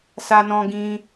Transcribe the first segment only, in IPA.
s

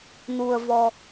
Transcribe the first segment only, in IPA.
n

